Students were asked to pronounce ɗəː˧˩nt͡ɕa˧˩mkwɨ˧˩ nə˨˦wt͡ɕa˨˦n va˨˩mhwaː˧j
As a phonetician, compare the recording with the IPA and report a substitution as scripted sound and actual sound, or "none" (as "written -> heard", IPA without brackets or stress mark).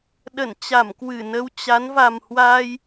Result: əː˧˩ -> ə˧˩